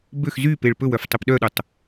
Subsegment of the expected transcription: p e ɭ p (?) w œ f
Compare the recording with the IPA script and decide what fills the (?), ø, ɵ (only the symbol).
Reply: ɵ